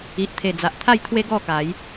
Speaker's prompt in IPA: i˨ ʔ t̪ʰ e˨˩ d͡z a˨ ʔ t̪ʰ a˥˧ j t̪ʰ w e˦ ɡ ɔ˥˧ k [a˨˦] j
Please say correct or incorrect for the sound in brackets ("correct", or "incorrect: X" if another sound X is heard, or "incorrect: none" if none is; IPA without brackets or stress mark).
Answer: correct